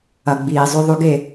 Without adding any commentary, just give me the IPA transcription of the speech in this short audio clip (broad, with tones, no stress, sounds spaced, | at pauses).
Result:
ɐ˨ ɡ͡b iː˨ zˤ ʉ˨ ðˤ ʉ˨ ɡ e˨